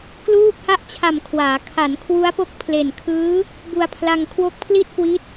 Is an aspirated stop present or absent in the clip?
present